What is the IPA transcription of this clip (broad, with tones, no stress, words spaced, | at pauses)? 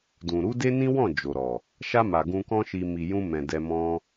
dũ˨ ɾu˨˦de˦nĩ˦wɔ̃˦˨ d͡ʒo˨ɾɔ˨ | ʃa˧ ma˨ɡũ˧kɔ̃˦ʃi˧ mi˨jũ˧mɛ̃˨ dɛ˧ mɔ̃˧